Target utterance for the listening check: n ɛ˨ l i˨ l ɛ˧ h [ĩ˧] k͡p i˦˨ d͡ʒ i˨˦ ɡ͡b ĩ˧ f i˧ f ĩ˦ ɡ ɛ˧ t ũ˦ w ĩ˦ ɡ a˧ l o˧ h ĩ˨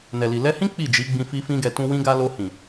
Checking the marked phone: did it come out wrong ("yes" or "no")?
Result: yes